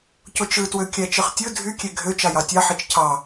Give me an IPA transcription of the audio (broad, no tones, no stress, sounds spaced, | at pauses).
c o t͡ʃ ɯ t w ø kʲ æ t͡ʃ ɯ χ tʲ ɯ dʱ y kʲ e ɡʱ ø t͡ʃ ɑ j ɑ tʲ ɑ ħ i t͡ʃ cʰ ɑ